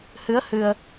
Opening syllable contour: rising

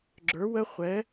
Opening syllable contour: rising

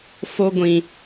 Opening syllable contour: high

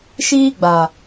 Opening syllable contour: high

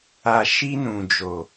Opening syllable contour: low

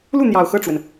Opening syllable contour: falling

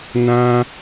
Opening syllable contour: high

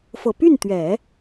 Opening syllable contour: low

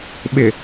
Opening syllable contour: low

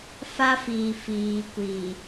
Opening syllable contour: high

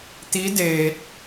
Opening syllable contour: rising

